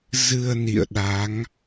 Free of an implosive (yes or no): no